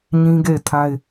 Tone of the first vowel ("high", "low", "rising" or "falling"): high